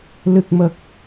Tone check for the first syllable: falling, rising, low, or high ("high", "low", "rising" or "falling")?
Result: low